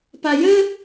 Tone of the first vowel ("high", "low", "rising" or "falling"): low